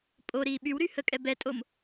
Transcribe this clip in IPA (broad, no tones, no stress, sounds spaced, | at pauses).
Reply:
pʼ o ɾ iː ɓ y w ɾ y h ə kʼ ɛ b ɛ tʼ o m